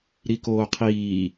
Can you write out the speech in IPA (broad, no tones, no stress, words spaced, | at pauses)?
ɾikoːqʰiː